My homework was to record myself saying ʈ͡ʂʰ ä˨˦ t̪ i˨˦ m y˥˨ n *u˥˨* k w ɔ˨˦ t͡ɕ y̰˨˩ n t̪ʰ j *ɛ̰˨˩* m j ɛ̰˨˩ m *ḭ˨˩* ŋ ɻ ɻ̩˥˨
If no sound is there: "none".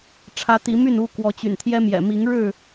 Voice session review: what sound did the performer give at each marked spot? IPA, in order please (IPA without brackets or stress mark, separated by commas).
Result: u˥˨, ɛ˦, i˨˦